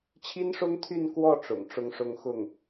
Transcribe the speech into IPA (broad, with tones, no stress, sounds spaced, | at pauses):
t͡ɕʰ i˥ n ʂ ʊ˥ ŋ t̪ʰ y˥˧ n k w ɔ˥˩ ʈ͡ʂ ʊ̰˨˩ ŋ ʈ͡ʂ ʊ˥˧ ŋ ʂ ʊ˥˧ ŋ x ʊ˥˩ ŋ